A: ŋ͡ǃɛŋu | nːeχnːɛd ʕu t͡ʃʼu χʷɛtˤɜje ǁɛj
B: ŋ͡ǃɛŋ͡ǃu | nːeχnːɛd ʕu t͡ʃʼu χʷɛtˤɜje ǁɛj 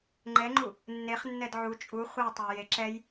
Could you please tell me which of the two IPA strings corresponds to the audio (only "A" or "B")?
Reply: B